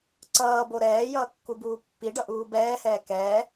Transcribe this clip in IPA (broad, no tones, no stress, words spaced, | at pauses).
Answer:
ǀʌːbo ɾɛːjʌː kːubuːpːiɖʌ ʔuːbɛːhɛː kɛː